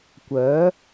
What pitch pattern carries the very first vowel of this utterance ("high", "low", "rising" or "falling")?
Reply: rising